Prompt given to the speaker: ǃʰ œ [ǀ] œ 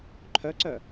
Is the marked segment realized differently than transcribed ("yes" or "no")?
no